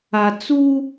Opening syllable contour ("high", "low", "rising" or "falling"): low